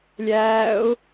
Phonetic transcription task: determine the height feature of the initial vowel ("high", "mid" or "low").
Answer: low